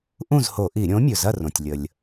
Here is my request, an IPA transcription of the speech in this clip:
ʔũ˥˨zho˧˩˧ʔi˧˩˧ ɾʲõ˨˥mʲɵ˩zɐ˥˨ rõ˩tʲlʲə˩lʲ

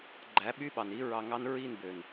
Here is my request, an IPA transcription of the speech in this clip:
ɡ͡ǃæ˨˦ɓy˦ɓɑ˨ni˦ ɹɑ˧ŋɑ˦n ɹi˦˨nbø˨n

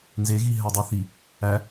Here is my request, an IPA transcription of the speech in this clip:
nzeɣi ɦædˤoθi | æ

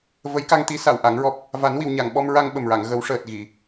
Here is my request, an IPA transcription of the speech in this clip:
və˧˥jka˧ŋt̪i˧˥ sa˨˩˨w ʔa˨˩˦ŋɹɔ˦˥p̚ | va˨˩˦nwi˨˩˨wɲa˨˩˨ŋɓɔ˧m ɹa˧ŋɓə˨˩mɹa˨˩˨ŋ ɣə˨˩˦wʂəː˨˩t̚ ɣi˨˩˨

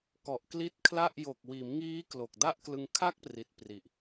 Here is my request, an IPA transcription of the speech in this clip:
kɔ˨˩ʔkli˦˥t̚kʰla˥˩ʔ jo˨˩k̚wiː˩˦m ŋiː˦˥klo˨˩k̚ da˥˩ʔklɯ˧ŋ kʰa˥˩k̚pri˨˩t̚ pri˨˩ʔ

